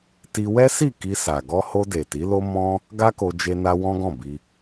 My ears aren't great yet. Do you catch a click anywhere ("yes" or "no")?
no